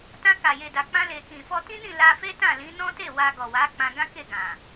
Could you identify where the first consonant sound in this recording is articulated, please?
alveolar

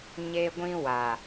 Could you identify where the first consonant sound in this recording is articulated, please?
palatal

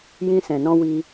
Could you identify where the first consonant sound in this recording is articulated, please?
palatal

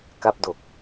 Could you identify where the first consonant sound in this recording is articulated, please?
velar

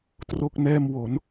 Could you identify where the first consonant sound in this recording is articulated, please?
alveolar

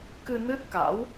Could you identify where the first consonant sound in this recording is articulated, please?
velar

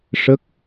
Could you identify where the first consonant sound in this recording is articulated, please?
retroflex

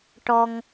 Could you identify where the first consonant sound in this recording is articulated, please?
retroflex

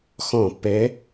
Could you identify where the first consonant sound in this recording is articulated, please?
velar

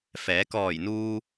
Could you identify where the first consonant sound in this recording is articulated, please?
labial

